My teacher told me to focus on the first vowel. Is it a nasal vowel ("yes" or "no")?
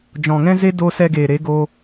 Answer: yes